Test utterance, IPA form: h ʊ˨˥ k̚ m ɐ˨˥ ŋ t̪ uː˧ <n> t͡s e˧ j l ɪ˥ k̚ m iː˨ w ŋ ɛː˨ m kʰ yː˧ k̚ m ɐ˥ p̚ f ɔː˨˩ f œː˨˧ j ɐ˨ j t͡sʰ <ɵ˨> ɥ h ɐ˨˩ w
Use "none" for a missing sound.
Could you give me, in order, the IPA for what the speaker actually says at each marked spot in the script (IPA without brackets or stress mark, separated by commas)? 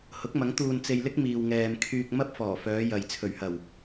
n, ɵ˨˩